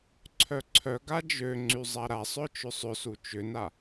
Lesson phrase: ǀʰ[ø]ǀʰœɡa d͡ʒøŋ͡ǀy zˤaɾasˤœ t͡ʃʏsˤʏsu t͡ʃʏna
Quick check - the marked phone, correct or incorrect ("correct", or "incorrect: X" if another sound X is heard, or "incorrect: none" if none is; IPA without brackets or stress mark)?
incorrect: œ